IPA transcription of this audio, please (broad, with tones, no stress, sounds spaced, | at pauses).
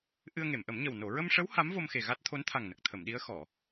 ʔ ɨ˧ ə̯ ŋ e˨˩˨ m ʔ ə˨˩˦ m ɲ ə˨˩ w n o˨˩˨ ɹ ə˧ m ʂ ə˧˥ w h a˧˥ m v o˧ m x e˨˩ ɣ a˦˥ t̚ t̪ʰ o˧˥ n t̪ʰ a˨˩ ŋ n ə˨˩ k̚ t̪ʰ ə˨˩˨ m ɗ i˧˥ ə̯ x ɔ˨˩˨